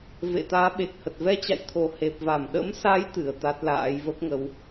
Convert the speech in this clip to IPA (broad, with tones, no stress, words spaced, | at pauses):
vḛ˧˨t̪aː˨˦ɓe˨˩k̚hə˨˩t̚ vɛ˧t͡ɕa̰˧˨jt̪ʰo˨˩ he˨˩p̚va˧˩m ɗə̰˧˥msa˨˦j t̪ɨ˨˩ə̯t̪a˦˥t̚la̰ː˧˥j və˦˥p̚ŋə˨˦w